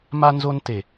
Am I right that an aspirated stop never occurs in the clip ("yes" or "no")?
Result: yes